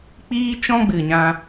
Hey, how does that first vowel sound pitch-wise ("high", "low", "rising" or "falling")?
high